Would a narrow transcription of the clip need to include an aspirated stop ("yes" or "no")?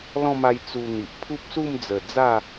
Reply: yes